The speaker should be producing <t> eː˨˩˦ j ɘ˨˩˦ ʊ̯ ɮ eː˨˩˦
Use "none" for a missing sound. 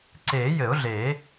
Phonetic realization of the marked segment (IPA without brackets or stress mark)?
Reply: ǀ